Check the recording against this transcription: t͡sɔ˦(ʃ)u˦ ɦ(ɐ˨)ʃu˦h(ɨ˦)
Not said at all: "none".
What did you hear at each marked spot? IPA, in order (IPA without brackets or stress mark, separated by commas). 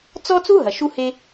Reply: t͡s, ɐ˨, e˦